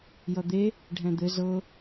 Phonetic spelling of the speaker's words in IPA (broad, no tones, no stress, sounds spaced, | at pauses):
j ʌ d̪ e | ɖʱ ɛ̃ d̪ ɘ z ɤ